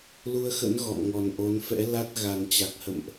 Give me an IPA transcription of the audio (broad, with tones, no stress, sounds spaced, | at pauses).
l u˧ ə̯ x ə̰˧˥ n ɣ ɔ̰˧˨ m ŋ ɔ˨˩ n ʔ o˨˦ n f ɛ̰˧˥ l a˦˥ t̚ ɣ a˨˩ n t͡ɕ a˨˩ k̚ h ə̰˧˨ m ʔ